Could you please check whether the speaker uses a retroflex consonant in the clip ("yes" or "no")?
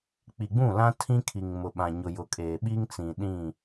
no